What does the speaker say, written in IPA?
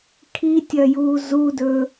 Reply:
kʰ i tʲ ɐ j uː z u d ɵ

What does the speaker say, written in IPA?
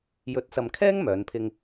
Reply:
j ɵ˨˥ t̚ s ɐ˨ m kʰ ɛː˥ ŋ m œː˨˥ n pʰ ɪ˥ ŋ

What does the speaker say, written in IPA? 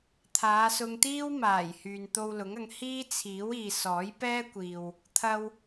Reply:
t̪ʰ aː˨˧ s ʊ˧ ŋ t̪ iː˥ w m aː˨˩ j h yː˨ n t̪ o˧ w l ʊ˨˥ ŋ ɐ˨˧ ŋ h iː˥ t͡sʰ iː˨˥ w iː˨ s ɔː˨˥ j p ɛː˥ kʷ iː˨ w | t̪ʰ ɐ˧ w

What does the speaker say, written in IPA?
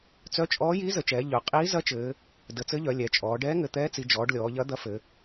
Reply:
t͡s œ˧˥ t͡ʃʼ ɔː˧˥ j iː˧˥ z ə˩˧ t͡ʃ ɛː˩˧ ʎ œ˩˧ qʼ iː˧˥ z ɐ˧˥ t͡ʃ ɘː˩˧ | d ə˩˧ t͡s ɘ˧˥ ʎ œ˩˧ lʲ ɛ˩˧ t͡ʃʼ ɔː˩˧ ɖ ɛː˧˥ ŋ ɘ˩˧ t̪ ɛː˧˥ t͡s i˩˧ d͡ʒ ɔː˩˧ ɖ lʲ ɔː˩˧ ʎ ɐ˧˥ d̪ ɐ˧˥ f ɘ˩˧

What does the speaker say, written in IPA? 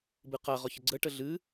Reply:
b ɨ q a ʁ ɔ ç ə ɡ͡ǀ ə ʈ ə ɮ ɨ

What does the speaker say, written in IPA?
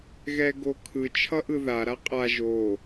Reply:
ɣ ɛ ɡ o kʰ ɯ t͡ʃʰ ʌ ʔ ɯ ð a ɾ a qʼ a ʒ o

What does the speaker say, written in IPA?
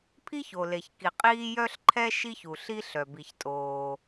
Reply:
pʰ i˥ ç o˩ l e˩ ç k i˩ qʼ iː˥ j œ˥ ɬ ǃʰ ɛ˥ ʃ i˥ ç u˩ ɬ i˥ ɬ œ˩ b i˩ ç tʼ oː˩

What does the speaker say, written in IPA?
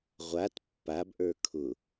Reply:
ʁʷ a t pː a b ʔ ə˞ kʰ ʊ

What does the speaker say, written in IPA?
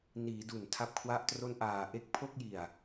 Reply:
n iː˩˦ d u˨˩ n tʰ a˥˩ p̚ kʰ w a˥˩ ʔ t r o˥˩ n ʔ aː˨˩ ʔ e˥˩ k̚ pʰ o˥˩ k̚ j i˨˩ a̯

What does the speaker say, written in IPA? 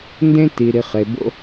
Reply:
n d ẽ˥ t i˨ ɾ i˨ χ e˨ b o̰˦

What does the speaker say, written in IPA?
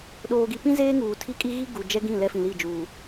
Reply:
ɗ oː˨ ɡ i˨ p ĩ˦ z eː˦ ŋ uː˨ tʰ i˦ kʼ i˦ ɣ i˦ ɡ u˨ d͡ʒ ɛ˦ ɡ ĩ˦˨ l ɛ˦ f ĩ˨ l i˦˨ d͡ʒ uː˨

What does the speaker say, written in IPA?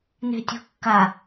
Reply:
n e̤ tʲ o̤ kː a

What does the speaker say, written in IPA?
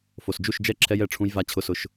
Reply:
f o˨ s d͡ʒ u˦˨ ʃ d͡ʒ ɛ˦ ǁʰ ɛ˦ j ɛ˦˨ ʈ͡ʂʰ ũ˦ j v a˦ t͡ɕʰ ʊ˦ s ʊ˦ ʃ

